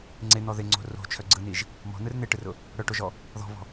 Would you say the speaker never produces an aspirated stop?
no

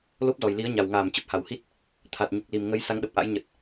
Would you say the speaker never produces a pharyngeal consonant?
yes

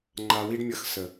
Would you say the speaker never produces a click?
no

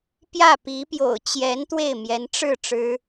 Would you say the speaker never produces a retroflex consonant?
no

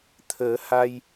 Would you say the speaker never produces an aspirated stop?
no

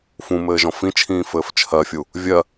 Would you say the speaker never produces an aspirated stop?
no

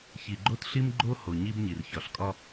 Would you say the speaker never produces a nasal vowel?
yes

